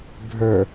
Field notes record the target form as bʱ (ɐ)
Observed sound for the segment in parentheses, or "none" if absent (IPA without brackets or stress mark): ə˞